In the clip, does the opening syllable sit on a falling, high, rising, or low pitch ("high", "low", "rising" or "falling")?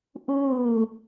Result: falling